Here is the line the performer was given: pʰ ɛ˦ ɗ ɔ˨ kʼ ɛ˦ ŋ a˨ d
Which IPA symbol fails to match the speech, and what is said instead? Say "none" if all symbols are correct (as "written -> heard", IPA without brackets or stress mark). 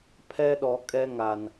d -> n